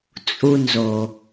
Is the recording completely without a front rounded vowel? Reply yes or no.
yes